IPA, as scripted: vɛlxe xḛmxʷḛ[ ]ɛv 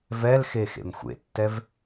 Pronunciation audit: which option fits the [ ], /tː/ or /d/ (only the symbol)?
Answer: tː